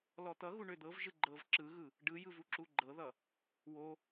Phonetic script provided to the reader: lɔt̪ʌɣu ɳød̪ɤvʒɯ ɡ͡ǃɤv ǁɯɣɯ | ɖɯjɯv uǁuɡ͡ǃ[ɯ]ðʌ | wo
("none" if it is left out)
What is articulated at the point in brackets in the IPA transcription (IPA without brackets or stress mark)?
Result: ɤ